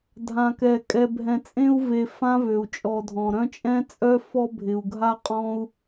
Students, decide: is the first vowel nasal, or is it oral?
nasal